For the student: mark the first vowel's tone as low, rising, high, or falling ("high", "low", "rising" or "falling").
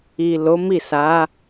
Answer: low